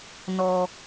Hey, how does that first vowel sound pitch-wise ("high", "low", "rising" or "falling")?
high